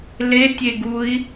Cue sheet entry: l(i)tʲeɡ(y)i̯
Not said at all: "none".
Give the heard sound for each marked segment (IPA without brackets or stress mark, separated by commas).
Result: e, u